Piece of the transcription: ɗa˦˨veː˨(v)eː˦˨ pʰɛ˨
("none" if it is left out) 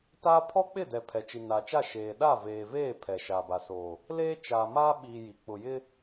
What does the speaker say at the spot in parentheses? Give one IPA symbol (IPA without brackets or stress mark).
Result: v